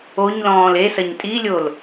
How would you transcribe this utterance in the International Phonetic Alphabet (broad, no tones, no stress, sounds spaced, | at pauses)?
o ɲ l ɔ̃ː l e s ɐ ɲ tʼ i lʲ o l